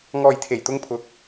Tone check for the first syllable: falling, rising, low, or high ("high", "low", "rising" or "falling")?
low